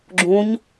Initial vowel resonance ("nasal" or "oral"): nasal